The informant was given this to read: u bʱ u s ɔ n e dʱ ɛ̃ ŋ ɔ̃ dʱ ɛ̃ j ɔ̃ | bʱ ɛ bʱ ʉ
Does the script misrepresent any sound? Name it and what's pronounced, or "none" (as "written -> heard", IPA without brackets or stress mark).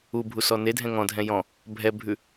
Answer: none